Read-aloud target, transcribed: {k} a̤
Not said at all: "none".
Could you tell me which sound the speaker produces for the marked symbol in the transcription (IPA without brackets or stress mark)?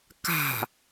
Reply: k